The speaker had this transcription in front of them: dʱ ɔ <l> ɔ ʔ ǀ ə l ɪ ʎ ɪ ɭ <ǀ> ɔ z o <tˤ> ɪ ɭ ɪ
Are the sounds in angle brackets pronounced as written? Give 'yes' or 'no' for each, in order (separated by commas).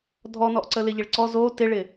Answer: no, yes, no